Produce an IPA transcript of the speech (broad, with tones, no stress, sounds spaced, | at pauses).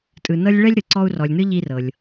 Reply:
tʼ ɯ˨ n ɤ˦ lʲ ɭ ɛ˥ lʲ ɾ ɯ˩ ǀ ɔ˦ u̯ r ɔ˨ lʲ n ɯ˦ ʎ i˦ r ɤ˨ lʲ